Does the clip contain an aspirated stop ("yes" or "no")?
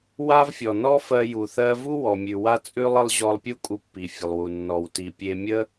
no